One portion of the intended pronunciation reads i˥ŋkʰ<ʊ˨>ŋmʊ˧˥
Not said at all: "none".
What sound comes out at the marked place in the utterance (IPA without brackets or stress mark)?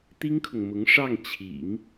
ʊ˨